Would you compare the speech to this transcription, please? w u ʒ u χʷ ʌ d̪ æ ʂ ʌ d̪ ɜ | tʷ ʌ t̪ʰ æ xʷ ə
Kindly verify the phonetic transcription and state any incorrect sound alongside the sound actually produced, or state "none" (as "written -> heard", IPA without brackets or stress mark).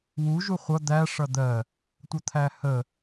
xʷ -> h